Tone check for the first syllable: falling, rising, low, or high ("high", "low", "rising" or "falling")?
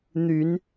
rising